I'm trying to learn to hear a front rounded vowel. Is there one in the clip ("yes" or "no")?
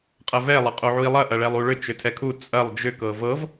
yes